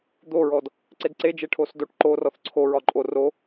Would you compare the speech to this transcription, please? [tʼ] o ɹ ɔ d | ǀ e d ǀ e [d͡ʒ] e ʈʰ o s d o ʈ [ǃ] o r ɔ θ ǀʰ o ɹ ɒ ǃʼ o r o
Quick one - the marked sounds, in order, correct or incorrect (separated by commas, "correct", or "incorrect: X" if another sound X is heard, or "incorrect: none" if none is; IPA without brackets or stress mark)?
incorrect: d̪, correct, correct